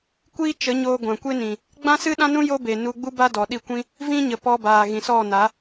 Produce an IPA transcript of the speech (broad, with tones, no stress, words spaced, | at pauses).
kʷiː˦t͡ʃə˨˦ɲoː˧ ɡʷã˨kʷe˦nĩ˨ | ɡ͡bã˦sɨ˦ɗã˦nũ˦ jo˦ be˨ nu˧ɡ͡bu˦ ba˦dɔ˨ɗi˦˨ kʷĩ˦ | vĩ˦ɲə˨ pɔ˧baː˨ ɣĩ˨sɔ˦˨na˨˦